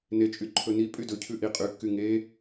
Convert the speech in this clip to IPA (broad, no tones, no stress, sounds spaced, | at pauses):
n e t͡ʃʼ y ǃʰ ɵ n i pʼ y d ɵ cʰ ʉ ʔ i qʼ y kː y ŋ e